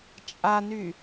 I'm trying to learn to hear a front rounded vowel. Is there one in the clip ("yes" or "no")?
yes